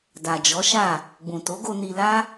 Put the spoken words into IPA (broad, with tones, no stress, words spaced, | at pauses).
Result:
da˨d͡ʒɔ˨˦ʃa˦˨ | ɡ͡bũ˨to˨˦ɡo˧ ni˧la˦